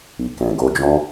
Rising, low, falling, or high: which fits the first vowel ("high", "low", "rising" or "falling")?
low